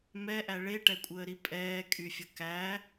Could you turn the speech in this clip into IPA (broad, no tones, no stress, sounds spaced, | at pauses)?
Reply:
m ɛ ʔ æ ɭ e ʈ ɛ kʷʼ əː ɾ i pʼ ɛː kʼ y fʲ ə k æ